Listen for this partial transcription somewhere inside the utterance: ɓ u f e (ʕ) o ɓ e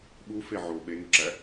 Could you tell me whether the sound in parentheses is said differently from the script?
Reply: no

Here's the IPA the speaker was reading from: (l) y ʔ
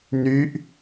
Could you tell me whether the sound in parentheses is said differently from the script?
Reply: yes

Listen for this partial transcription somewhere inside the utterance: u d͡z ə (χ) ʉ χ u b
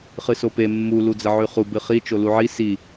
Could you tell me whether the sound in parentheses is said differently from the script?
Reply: yes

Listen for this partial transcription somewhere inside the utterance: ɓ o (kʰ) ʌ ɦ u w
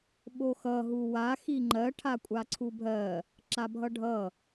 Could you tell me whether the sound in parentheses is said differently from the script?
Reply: yes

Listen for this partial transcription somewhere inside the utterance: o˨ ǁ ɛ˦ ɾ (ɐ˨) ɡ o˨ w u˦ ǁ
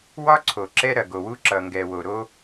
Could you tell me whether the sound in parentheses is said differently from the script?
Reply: no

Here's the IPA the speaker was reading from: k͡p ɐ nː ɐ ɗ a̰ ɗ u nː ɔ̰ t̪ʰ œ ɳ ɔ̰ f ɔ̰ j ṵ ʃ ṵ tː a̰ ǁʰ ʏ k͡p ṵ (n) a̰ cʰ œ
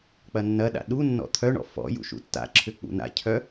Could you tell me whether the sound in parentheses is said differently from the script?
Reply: no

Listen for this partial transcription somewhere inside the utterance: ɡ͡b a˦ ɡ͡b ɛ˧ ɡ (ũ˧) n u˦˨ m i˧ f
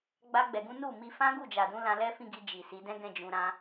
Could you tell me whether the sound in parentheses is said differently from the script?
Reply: yes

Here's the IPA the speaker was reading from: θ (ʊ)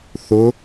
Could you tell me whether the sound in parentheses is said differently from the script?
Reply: no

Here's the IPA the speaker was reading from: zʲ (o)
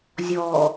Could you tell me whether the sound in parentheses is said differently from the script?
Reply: yes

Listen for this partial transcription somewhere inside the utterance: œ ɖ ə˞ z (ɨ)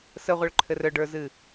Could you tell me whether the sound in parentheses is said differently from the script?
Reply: no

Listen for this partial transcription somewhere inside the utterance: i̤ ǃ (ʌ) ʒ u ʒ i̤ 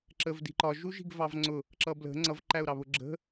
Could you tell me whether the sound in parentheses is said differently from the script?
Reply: yes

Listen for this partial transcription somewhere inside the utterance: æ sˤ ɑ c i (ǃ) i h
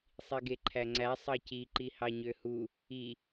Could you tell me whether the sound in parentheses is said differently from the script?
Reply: no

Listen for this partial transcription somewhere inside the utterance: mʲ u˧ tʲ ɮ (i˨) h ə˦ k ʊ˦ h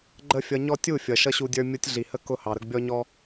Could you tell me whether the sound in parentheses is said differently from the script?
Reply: no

